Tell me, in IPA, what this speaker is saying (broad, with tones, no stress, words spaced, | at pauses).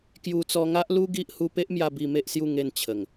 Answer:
kju˧t͡sɔ˧ŋa˦ʔlu˦ ɡi˦ʔhu˦ pe˦ʔmja˧ bi˧me˦ʔsju˥˧ ŋe˥˧n t͡ɕʰə˨˩ŋ